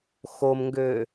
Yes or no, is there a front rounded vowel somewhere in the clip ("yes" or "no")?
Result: yes